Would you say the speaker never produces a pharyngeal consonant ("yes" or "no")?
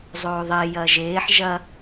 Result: no